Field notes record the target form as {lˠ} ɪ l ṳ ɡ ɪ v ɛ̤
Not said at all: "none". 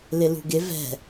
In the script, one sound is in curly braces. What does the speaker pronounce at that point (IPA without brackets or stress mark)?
l